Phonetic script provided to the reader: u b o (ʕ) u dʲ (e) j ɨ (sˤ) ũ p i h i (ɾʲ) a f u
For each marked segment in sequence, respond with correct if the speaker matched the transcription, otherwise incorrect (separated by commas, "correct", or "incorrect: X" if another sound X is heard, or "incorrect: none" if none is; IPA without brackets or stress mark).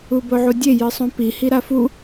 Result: correct, correct, correct, incorrect: ɾ